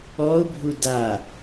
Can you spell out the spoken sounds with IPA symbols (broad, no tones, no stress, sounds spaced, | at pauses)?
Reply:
ɔ ʊ̯ bʱ u d a